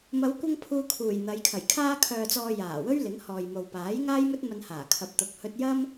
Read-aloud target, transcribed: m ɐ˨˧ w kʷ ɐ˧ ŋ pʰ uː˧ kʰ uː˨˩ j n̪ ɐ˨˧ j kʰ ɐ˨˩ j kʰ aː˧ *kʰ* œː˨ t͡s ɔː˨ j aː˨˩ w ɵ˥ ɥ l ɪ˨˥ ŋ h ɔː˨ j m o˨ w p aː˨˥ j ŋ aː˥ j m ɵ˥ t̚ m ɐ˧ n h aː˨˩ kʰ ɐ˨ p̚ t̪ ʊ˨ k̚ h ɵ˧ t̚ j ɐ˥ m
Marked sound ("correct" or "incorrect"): correct